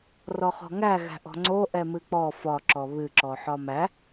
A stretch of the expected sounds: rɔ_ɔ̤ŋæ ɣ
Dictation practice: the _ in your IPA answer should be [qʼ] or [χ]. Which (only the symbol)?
χ